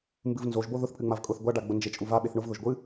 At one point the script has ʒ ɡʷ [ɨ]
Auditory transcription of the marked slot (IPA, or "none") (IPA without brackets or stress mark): ɨ